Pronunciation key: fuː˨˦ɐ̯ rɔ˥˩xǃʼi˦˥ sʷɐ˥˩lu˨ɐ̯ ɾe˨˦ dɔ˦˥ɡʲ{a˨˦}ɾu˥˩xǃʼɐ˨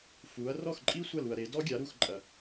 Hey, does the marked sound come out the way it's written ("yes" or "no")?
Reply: yes